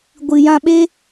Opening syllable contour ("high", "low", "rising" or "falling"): low